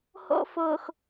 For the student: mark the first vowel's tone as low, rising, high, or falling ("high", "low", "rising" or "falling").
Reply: high